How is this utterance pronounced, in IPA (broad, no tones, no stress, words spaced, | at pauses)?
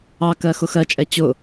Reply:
ɑkɜ xʊxɜt͡ʃʼɛ t͡ɕʊ